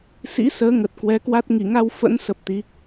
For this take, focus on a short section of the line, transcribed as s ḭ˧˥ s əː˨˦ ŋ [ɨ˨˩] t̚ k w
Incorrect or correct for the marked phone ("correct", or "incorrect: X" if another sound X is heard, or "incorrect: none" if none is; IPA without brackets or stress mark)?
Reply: incorrect: ə˨˩